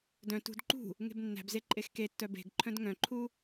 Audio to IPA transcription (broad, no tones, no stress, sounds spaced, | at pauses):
d œ̃ t ṳ d ǃ ṳ | ŋ e̤ b nː æ̤ b z e ǃʼ e x k e tː œ b e̤ ɡ ǃʰ œ̃ d ŋ œ̃ ǃʰ u